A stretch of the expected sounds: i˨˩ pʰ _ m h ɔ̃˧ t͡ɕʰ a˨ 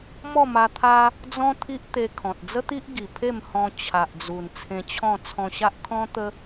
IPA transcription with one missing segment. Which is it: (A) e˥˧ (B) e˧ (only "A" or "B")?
A